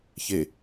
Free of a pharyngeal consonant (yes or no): yes